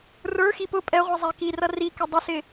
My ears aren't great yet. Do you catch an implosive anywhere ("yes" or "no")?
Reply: no